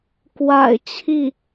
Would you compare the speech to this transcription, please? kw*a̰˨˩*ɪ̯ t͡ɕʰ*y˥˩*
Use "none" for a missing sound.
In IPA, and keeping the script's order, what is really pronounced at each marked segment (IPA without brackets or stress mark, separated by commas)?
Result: a̰˨˩, i˥˩